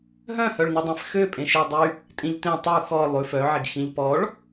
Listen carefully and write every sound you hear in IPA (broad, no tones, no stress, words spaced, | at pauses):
ɦœ̃hœɭnødˤɛ̃f xø pʼẽʃø dˤy | tʼĩʎtẽ tˤu xɔ lˠʉf œʕeɡ xĩʎpɔɭ